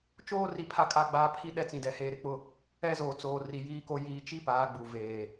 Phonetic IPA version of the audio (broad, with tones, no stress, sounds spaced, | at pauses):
t͡ʃ oː˦ r i˨ pʰ a˦˨ kʼ a˦˨ ɡ͡b aː˦ pʰ i˦ ɗ ɛ˦ t͡s ĩ˨ d ɛ˨ h eː˨ ɾ ɪ˦ k͡p ʊ˦˨ | ɛ˦ z o˨ t͡s oː˨ r i˨ j iː˦ k o˦ j iː˨ t͡ʃ i˦ p aː˨˦ ɡ͡b u˨ v eː˨